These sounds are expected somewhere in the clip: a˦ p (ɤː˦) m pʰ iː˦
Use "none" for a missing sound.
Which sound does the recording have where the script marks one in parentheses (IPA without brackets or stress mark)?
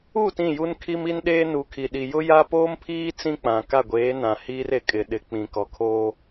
oː˦